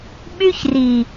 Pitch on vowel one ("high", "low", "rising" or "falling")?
high